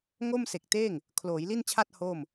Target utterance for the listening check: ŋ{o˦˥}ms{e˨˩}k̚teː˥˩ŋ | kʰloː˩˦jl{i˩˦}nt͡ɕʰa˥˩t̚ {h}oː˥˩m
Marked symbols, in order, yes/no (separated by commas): no, yes, no, yes